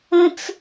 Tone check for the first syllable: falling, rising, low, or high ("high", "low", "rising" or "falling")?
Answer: high